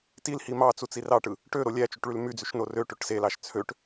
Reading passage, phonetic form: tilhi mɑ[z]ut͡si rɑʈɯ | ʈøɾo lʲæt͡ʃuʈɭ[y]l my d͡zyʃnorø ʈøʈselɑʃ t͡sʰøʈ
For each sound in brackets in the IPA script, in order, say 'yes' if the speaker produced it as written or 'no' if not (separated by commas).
no, yes